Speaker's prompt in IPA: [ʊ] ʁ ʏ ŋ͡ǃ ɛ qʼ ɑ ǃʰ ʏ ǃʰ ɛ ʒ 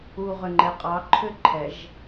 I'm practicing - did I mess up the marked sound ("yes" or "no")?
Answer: yes